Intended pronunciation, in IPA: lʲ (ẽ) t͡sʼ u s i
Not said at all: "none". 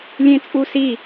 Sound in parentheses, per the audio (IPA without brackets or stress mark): ẽ